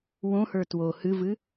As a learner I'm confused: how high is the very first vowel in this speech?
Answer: mid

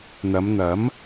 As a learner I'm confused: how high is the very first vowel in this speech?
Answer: low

